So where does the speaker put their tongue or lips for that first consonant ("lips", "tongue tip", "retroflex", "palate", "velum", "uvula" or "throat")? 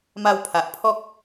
lips